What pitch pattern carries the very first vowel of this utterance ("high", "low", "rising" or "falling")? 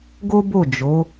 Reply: high